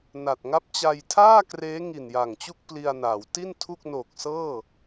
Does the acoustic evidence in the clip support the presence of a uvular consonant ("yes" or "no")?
no